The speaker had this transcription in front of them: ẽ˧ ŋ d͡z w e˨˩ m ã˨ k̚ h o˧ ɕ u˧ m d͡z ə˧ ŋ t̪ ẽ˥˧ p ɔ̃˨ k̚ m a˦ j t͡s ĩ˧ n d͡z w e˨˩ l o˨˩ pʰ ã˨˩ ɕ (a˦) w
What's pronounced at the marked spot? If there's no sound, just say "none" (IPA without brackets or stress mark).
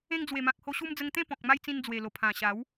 a˨˦